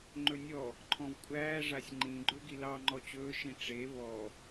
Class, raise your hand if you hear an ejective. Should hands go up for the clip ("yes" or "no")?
yes